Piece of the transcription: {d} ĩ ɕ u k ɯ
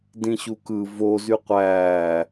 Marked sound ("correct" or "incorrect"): correct